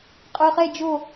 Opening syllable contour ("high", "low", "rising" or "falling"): low